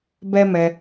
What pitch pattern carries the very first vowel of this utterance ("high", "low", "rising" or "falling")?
high